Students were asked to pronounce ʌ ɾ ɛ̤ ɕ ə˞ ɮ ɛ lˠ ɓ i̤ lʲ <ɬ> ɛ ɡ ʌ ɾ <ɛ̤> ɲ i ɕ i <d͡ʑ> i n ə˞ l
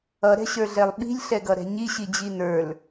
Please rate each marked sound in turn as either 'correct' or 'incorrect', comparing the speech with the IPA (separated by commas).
correct, correct, correct